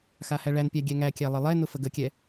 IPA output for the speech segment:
xahæɭænpʲæ ɡʲɛŋækʲæ lˠəlˠɛnʊ fəɡəkʲɛ

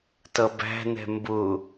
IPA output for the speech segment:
tʌbæ̤nɛ̤ mbʊ

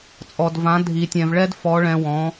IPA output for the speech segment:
t͡sʼɔ˨dvã˨˦ dʱi˨tʲɛ̃˨vɭɛ˦dfɔ˨˦ ɭɛ̃˧wɔ̃˨˦

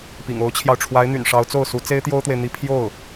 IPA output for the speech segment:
pḭ˨˩ŋo˧˥ʊ̯t͡ɕʰjɑ˧ʊ̯ ʈ͡ʂʰwa˧˥ɪ̯n̪y̰˨˩nʂɑ˧˥ʊ̯ t͡so˥˩ʊ̯su˧˥ t͡se˥ɪ̯t̪jo˥ʊ̯t̪we˨ɪ̯ n̪i˥ pʰjo˥˩ʊ̯

